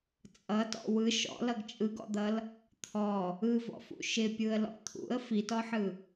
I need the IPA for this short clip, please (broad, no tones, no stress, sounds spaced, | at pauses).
t͡sʼ ʌ t ɔ̰ w ɯ ʃ ɔ̰ l ʌ ɡ t͡ʃʼ ɯ ɡ ɔ̰ d̪ ʌ l | t̪ʰ ɔ | ɯ v ɔ̰ f ṵ ʃ ɪ pʲ ɯ ə̯ l ɔ̰ t̪ʰ ṵ ə̯ f i t ɔ ħ ɯ